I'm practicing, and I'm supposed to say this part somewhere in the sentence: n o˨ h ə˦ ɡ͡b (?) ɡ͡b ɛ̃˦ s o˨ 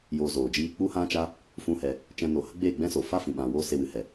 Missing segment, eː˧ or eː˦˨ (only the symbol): eː˦˨